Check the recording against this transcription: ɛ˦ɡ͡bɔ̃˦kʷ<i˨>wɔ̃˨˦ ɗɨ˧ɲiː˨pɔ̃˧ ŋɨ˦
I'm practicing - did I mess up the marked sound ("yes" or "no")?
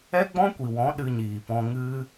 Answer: no